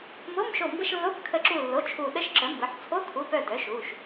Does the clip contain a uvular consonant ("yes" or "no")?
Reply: no